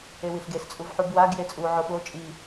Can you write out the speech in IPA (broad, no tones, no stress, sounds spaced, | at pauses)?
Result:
e w i ɬ ɡ e s t͡sʼ u v ħ u b w a ɡ j e t͡sʼ u ʕ o ɓ o t͡ʃʼ i